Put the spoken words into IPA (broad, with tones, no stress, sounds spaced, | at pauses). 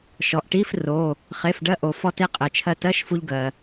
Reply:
ʃ ɔ˩ ʔ ʈ i˧˥˧ f r o˩˧˩ | χ e˩˧˩ f ɖ ɜ˧ ʔ o˩ f ɔ˧ t e˧ qʼ ɛ˩ t͡ʃʰ ɜ˧ t ɜ˧˥˧ ʃ f u˧ ʎ ɡ ɜ˩